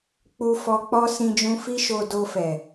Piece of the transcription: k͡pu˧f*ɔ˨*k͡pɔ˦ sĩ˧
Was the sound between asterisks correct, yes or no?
no